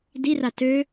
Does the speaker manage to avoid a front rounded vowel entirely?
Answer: no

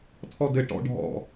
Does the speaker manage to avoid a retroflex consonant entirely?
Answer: no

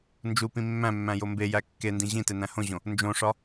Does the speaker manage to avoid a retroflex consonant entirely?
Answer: no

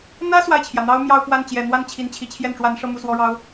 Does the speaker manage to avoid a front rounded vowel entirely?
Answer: yes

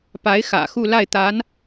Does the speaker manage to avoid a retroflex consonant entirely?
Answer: yes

